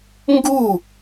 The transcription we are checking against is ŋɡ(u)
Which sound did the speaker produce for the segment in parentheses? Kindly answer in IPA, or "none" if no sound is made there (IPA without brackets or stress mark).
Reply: u